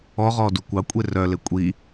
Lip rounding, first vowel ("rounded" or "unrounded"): rounded